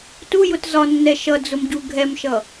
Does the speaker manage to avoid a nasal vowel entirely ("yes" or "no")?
yes